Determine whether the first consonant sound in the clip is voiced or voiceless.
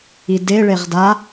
voiced